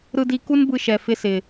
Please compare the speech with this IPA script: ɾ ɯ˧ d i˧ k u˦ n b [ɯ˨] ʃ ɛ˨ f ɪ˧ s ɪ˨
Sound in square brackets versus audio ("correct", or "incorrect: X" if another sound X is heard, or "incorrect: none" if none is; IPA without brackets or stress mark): incorrect: ɯ˧